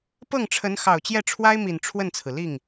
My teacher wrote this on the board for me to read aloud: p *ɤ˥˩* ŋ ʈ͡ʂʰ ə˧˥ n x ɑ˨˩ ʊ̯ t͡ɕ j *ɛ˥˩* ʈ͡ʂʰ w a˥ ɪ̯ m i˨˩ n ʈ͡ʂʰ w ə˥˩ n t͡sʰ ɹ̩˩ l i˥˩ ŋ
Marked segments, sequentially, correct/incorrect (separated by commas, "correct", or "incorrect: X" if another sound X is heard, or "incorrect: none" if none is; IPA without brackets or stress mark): correct, correct